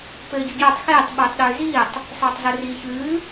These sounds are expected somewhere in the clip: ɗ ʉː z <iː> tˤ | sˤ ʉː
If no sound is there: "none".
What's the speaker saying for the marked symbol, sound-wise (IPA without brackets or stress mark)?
iː